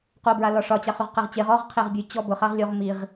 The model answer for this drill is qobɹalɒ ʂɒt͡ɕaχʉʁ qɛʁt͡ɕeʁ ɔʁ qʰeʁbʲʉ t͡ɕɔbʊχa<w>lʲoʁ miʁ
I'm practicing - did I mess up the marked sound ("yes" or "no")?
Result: yes